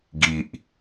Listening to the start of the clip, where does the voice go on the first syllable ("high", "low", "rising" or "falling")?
low